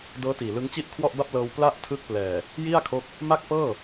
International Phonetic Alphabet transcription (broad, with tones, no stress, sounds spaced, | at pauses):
d ɤː˦˥ t iː˨˩ l ɯ˦˥ ŋ t͡ɕ i˥˩ ʔ kʰ w ɔ˥˩ ʔ b a˥˩ p̚ l ɤː˧ w p l a˥˩ ʔ tʰ ɯ˦˥ k̚ p l ɛː˨˩ | j i˥˩ a̯ kʰ o˦˥ k̚ | m a˥˩ k̚ p ɤː˥˩